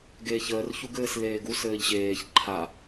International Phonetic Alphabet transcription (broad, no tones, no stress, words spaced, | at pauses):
ɡeːçəːr çuɡɘːsleːɡu sɘːʎɕeːç ǃʰa